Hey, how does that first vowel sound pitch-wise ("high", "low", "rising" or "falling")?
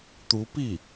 rising